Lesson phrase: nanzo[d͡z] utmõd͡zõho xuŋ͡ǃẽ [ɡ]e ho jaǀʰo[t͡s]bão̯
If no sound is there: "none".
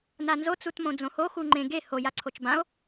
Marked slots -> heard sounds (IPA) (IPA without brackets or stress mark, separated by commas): t͡s, ɡ, t͡ʃ